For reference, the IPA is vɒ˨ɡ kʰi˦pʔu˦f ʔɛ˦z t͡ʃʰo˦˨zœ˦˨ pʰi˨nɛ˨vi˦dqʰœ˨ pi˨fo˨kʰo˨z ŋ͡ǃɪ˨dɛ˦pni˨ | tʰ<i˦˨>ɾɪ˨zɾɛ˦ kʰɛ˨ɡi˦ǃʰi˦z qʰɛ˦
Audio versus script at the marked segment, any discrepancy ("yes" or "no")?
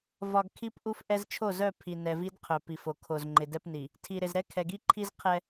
yes